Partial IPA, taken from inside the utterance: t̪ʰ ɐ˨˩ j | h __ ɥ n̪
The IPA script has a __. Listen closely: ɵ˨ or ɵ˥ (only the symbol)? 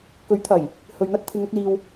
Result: ɵ˨